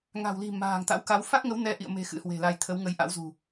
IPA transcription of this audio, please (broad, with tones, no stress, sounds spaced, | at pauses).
ŋ a̤˨˩ w l i̤˨˩ m a̤ː˨˩ ŋ t̪ a̰˧˥ w k a˨˦ w f a˦˥ k̚ ŋ ə˨˦ w n ɛ˨˦ ʔ ḭ˧˨ ə̯ m e̤˨˩ x ɨ̰˧˥ h w e̤˨˩ l a˧ j t̪ʰ ə˨˦ w ŋ ə˨˦ j ʔ a̰˧˥ w z ṳ˨˩